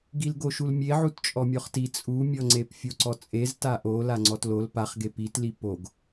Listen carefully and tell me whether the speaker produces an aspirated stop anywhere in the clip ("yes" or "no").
no